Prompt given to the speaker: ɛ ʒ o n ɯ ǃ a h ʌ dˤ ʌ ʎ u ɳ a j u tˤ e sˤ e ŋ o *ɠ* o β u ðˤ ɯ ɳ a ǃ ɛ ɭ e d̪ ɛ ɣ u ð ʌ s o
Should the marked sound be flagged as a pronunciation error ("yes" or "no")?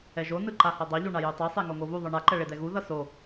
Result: yes